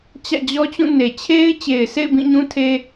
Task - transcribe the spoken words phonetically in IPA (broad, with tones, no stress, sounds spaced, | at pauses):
t͡ɕ ä̰˦˨ d͡ʑ ɔ˦ t͡ɕ ũ˦˨ n e˨ t͡ɕʰ e˦ ɪ̯ t͡ɕ e˨ ɪ̯ s ḛ˦˨ ɪ̯ b ĩ˦˨ ɲ ũ˦ tʰ e˦